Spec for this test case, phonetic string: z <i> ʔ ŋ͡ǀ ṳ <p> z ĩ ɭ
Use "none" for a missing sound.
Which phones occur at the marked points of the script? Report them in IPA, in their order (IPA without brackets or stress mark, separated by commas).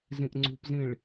ĩ, p